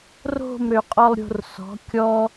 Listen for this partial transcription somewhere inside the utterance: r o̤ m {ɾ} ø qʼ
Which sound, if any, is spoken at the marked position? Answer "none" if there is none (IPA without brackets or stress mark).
ɾ